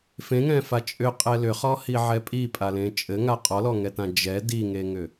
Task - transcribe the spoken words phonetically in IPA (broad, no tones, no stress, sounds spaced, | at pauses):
f ẽ ŋ ɛ̃ f a t͡ʃʼ ʏ qʼ ɛ l ʏ χ ɔ h i ʕ ɛ pʼ i pʼ a l ẽ t͡ʃʼ ɘ ŋ a qʼ ɔ l ɔ ŋ ɛ t ã d͡ʒ ɛ d i ŋ e ŋ ʏ